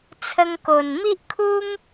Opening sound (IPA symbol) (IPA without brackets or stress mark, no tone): t͡sʰ